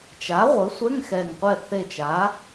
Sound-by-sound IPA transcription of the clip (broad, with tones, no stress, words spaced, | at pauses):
t͡ʃa˩˥ ʁʷɘ˩˥sʷɛ˧˥˧ŋxɛ˨˩ŋqʷɛ˦˨ θe˦˨t͡ʃa˩˥